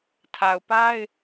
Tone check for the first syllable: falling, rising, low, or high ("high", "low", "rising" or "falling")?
low